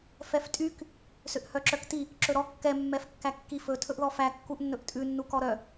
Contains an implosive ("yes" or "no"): no